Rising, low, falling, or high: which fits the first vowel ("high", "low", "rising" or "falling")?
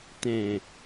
low